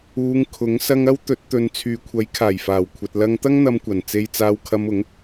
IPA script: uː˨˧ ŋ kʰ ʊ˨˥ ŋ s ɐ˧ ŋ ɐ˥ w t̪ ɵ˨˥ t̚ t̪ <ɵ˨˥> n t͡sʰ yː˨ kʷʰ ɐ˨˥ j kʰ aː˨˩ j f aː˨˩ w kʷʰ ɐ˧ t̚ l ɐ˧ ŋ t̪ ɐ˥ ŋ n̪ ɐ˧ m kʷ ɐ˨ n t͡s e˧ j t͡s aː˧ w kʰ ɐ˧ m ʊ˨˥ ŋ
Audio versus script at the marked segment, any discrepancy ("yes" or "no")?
yes